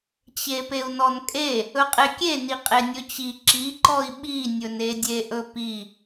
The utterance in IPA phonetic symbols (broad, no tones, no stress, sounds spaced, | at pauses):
t͡ɕ e p e u̯ n ɔ n kʼ e | ɵ qʼ e kʲ e n i qʼ e nʲ ɵ t͡ɕ i ǁ i ǃ ɔ i̯ ɓ i nʲ ɵ n e dʲ e ʔ ɵ p i